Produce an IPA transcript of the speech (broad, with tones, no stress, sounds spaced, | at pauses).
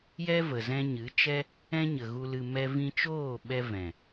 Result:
j ɛ˦ v ə˨ z ɛ̃˧ ɲ ɨ˨˦ t͡ʃ ɛ˦ | ɛ̃˦ ɲ ə˨ ɣ u˧ l ɨ˧ m ɛ˦ v ĩ˧ t͡ʃ oː˦˨ ɓ ɛ˧ v ɛ̃˨